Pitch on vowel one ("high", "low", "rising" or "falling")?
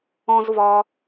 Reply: high